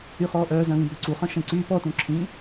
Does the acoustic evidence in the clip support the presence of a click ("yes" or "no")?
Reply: yes